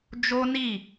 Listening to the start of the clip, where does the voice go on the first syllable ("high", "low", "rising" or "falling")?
high